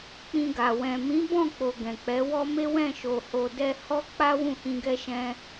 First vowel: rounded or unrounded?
unrounded